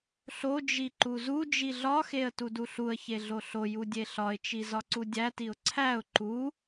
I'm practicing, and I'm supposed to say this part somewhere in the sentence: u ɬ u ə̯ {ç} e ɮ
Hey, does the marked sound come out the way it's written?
yes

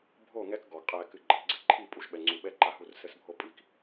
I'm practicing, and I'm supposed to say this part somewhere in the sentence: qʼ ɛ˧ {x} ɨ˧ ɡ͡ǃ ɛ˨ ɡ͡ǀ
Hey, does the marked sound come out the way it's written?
no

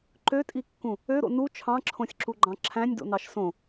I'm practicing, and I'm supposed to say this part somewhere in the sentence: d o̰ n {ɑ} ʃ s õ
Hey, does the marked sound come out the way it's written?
yes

